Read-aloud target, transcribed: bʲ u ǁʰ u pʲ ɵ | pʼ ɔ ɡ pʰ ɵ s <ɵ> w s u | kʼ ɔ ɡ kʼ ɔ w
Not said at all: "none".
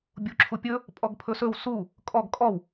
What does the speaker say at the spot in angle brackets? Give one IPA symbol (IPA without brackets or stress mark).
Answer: ɵ